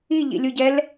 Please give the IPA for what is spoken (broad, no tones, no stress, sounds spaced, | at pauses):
i ʎ ḭ lʲ u ɟ ɛ l